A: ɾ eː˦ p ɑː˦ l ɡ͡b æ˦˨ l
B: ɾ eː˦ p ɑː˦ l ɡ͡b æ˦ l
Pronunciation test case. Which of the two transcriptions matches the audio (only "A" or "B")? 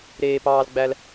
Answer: B